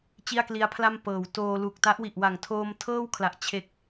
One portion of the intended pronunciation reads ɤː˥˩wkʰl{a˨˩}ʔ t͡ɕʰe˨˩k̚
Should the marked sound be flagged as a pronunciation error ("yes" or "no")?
no